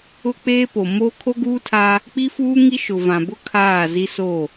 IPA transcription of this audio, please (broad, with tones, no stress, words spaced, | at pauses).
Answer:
ʊ˦k͡peː˦po˨ mo˦ kʰo˦ɡuː˦tʰa˦ | k͡pi˦fuː˦ŋi˦ ʃʊ˨vã˨bʊ˦ kʰaː˦˨zi˦ so˦˨